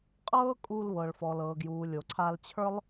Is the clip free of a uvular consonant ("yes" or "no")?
no